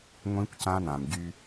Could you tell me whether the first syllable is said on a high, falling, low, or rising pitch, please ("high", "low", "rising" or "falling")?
high